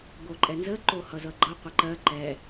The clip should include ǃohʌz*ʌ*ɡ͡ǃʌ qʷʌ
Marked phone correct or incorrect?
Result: correct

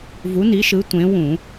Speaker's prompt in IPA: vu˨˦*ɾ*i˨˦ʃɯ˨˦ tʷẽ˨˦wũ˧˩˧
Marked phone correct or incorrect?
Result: incorrect: n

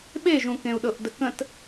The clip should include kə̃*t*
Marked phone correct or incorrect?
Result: correct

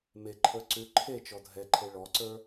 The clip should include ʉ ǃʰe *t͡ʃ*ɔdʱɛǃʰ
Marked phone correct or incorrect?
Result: correct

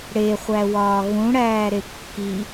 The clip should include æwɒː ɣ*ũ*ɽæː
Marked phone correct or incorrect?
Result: correct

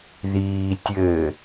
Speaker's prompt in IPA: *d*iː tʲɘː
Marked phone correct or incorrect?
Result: incorrect: ð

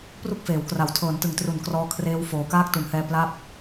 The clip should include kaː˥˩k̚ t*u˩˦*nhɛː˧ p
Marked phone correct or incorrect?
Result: correct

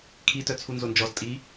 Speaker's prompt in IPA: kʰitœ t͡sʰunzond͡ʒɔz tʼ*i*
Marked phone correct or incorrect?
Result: correct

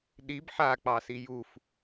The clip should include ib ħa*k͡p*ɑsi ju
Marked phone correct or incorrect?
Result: correct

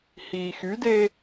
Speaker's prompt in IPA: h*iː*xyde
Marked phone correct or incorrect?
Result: correct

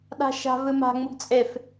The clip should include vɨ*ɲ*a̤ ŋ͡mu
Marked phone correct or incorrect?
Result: incorrect: m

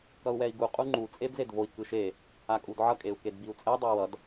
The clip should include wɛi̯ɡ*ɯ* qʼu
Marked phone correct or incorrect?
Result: incorrect: u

